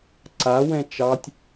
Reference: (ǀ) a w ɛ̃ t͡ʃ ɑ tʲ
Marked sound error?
no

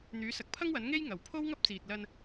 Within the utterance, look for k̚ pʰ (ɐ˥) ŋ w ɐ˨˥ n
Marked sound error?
no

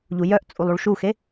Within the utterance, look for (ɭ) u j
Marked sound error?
yes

